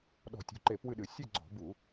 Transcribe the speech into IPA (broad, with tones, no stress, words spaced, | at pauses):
ɗɔ̤˧˩˧tʲṳ˩˧˩ǃe˧˩˧ pwɨ˥˨ɗɨ˧˩˧ sʲɨ˥˨ɡ͡ǀɔ̤˧˩˧bu˧˩˧